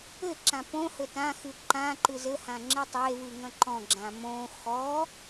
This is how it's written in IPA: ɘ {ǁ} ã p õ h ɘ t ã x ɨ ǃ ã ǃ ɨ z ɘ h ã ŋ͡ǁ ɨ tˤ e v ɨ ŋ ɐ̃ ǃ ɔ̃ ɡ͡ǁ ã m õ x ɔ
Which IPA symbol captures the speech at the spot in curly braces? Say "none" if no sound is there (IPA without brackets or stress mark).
ǁ